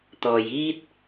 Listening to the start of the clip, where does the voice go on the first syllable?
low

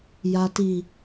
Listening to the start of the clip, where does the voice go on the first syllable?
low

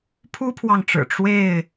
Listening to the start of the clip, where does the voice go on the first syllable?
high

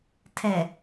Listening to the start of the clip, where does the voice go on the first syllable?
low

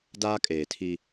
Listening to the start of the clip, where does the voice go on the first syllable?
high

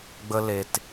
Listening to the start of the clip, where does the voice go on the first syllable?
high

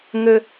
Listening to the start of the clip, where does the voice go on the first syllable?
high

